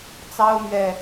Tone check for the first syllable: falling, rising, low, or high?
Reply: high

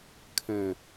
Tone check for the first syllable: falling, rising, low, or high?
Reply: low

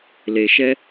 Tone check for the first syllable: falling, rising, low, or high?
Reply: low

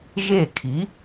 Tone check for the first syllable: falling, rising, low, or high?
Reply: falling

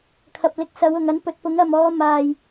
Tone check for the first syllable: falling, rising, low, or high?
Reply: low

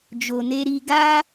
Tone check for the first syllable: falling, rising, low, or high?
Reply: low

